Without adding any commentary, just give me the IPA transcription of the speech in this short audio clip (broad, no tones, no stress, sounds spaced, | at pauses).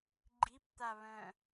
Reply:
ɡ͡ǃ i p t̪ a β œ̃